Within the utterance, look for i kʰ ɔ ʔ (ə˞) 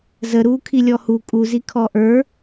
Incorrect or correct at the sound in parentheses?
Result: correct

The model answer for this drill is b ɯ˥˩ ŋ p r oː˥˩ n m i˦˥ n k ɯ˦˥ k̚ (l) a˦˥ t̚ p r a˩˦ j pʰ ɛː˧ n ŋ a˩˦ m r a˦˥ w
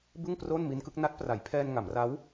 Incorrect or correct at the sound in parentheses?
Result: incorrect: n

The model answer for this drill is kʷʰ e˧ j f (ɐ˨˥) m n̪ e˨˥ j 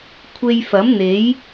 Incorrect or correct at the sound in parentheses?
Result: correct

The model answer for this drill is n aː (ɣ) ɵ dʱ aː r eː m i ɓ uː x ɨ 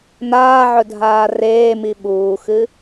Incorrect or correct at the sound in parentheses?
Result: incorrect: ʕ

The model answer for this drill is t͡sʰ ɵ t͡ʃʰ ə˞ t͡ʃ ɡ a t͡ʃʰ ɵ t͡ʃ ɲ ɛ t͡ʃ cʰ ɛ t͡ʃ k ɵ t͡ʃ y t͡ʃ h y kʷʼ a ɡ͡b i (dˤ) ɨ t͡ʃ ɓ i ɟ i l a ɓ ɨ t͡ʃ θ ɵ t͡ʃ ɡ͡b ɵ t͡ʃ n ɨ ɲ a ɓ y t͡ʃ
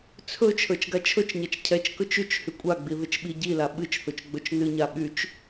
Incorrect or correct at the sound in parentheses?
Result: incorrect: ð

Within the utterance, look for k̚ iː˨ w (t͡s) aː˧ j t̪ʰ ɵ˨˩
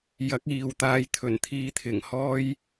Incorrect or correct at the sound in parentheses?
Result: incorrect: t̪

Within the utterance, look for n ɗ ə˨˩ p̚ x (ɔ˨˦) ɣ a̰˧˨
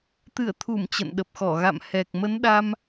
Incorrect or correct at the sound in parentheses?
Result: incorrect: ɔ˧˩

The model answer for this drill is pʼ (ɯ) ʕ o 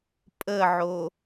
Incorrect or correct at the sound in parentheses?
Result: incorrect: ə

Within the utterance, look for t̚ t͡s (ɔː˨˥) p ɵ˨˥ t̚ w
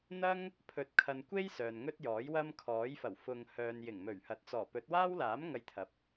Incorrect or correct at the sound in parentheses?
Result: incorrect: ɔː˨˩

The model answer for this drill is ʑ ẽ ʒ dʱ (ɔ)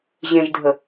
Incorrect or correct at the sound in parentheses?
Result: incorrect: ə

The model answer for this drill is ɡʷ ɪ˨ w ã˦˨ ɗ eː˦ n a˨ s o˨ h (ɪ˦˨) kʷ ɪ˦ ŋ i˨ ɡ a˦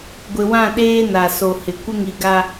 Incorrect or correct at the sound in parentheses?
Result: incorrect: ɪ˨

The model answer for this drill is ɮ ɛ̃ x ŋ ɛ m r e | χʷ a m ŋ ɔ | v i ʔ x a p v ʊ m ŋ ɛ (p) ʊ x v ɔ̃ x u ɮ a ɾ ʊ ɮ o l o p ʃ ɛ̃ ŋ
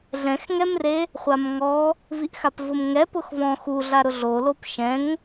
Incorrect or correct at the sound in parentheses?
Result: correct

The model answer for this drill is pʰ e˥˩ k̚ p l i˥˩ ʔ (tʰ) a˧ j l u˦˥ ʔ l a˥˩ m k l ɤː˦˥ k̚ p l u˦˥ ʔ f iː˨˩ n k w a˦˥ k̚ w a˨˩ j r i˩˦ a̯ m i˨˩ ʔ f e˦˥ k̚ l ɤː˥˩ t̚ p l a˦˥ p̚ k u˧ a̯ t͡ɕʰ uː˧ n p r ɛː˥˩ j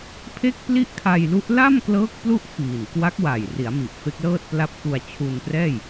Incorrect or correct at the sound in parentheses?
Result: incorrect: kʰ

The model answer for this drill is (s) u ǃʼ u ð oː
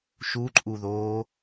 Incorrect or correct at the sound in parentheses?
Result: incorrect: ʃ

